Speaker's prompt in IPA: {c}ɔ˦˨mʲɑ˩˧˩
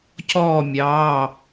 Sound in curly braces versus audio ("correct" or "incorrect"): correct